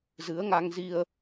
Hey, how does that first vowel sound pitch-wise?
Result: rising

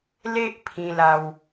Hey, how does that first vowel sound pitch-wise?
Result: high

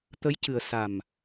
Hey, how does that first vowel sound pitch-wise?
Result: rising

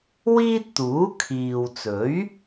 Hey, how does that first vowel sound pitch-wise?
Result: high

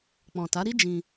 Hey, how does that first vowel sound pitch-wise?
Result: low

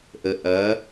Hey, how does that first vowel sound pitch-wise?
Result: low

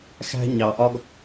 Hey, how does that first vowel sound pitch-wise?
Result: high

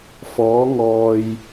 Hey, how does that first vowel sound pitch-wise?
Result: rising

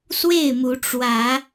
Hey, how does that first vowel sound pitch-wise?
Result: falling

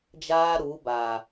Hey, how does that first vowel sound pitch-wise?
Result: high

